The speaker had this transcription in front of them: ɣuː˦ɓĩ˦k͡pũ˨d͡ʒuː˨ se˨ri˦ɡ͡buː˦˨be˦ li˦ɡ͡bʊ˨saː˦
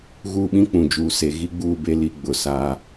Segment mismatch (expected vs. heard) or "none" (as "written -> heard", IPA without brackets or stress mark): r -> ɣ